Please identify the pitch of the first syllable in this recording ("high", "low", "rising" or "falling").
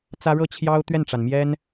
high